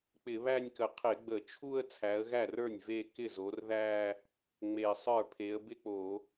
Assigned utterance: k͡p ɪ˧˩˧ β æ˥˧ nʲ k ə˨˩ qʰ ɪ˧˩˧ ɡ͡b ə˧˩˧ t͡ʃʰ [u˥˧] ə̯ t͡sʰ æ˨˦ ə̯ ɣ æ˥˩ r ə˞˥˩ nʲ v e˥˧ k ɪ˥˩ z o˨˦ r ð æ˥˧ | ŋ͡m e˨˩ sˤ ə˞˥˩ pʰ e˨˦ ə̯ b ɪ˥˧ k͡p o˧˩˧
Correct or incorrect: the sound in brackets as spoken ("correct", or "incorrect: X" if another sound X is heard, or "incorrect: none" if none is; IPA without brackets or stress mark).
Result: correct